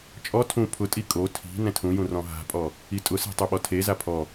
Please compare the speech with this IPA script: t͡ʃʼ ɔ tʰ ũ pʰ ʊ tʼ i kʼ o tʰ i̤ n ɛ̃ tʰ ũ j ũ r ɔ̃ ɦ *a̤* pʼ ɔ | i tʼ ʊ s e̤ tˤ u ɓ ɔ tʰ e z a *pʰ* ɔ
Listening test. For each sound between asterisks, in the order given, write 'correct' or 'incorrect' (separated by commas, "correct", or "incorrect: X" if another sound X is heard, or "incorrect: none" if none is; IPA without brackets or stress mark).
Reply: correct, correct